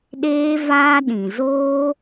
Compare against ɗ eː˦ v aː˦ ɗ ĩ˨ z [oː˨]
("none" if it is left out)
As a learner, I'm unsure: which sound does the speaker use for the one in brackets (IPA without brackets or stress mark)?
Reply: oː˦